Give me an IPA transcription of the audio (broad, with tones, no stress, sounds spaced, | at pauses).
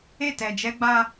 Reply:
e˦˨ t ɛ˨ d͡ʒ ɛ˦ ɡ͡b a˦